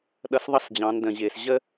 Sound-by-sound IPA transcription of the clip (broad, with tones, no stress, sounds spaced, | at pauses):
ɗ ʌ˧ s ðˤ ʌ˦ s d͡ʑ ɑ̃˨˦ n d ə̃˨ ʑ ɪː˨ s ʑ ə˦